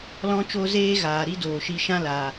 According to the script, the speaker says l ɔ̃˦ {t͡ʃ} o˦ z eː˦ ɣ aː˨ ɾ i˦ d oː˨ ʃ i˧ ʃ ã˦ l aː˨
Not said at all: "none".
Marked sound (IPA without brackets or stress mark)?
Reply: t͡ʃ